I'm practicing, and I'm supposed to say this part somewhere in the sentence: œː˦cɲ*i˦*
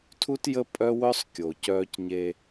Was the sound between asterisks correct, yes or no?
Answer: no